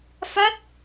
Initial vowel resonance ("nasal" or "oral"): oral